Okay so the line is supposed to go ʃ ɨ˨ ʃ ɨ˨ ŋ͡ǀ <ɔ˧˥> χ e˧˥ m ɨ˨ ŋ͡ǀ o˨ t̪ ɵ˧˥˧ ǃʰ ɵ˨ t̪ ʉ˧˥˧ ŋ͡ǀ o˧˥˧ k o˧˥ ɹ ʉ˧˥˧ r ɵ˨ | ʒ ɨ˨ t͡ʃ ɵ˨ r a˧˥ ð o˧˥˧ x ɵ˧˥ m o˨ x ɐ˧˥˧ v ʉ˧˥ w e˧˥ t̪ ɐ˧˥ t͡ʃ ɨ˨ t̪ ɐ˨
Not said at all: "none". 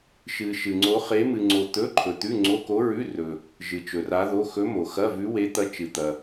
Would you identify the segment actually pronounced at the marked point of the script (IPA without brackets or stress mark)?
o˧˥